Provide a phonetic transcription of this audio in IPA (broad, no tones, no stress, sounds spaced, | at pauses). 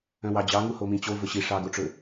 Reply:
œ̃ w ɑ d͡ʑ ɑ ŋ u h o m ĩ t͡ɕ o v ɵ ɕ i ʂ ɑ ɡ o ʈ͡ʂ ɵ